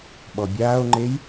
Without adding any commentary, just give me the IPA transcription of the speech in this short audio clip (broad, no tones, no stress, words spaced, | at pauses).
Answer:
ɓɔbʲaːo̯ŋ͡ǃej